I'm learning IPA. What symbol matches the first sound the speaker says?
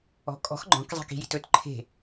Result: ɔ̤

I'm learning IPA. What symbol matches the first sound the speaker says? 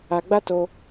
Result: a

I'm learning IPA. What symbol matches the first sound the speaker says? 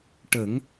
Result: ʈ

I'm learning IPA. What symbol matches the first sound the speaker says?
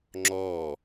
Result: ŋ͡ǁ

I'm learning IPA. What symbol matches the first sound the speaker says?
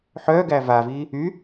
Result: ħ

